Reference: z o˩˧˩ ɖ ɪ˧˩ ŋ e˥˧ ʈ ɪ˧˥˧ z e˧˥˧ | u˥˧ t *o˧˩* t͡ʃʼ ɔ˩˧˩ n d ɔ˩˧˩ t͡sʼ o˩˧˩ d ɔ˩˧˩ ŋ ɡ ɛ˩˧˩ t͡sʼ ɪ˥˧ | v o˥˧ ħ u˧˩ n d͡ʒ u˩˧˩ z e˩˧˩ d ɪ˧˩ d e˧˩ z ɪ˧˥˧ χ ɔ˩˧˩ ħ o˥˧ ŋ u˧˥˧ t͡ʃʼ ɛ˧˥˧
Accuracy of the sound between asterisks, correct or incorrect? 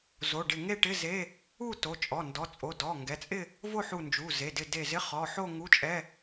incorrect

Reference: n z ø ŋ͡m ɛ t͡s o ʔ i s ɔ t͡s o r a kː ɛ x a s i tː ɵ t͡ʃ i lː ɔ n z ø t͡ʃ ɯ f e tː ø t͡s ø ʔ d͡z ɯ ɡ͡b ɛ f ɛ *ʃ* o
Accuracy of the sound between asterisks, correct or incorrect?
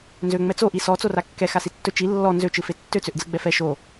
correct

